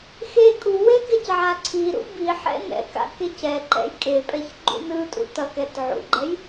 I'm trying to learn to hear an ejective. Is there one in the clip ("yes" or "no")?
yes